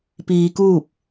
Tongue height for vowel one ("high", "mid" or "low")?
high